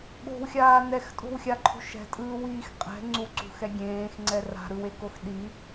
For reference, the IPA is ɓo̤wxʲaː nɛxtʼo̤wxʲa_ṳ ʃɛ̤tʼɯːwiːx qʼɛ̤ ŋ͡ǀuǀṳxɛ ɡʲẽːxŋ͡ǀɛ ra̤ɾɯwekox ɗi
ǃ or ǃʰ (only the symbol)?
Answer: ǃʰ